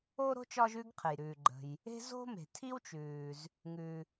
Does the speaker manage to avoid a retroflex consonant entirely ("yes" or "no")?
yes